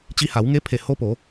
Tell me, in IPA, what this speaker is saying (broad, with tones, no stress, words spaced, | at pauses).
t͡ɕi˧ha˩˧wŋe˧˥pʰe˧˩ ho˧po˩˧